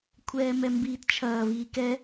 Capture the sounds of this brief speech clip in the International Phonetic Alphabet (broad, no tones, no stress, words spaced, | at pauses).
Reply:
kʷʰɛːmɛmbiːtt͡ʃʰɐː viːkɛ